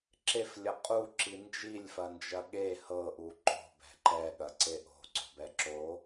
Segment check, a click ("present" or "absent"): present